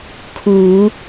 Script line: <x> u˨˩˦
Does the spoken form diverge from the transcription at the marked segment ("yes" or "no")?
yes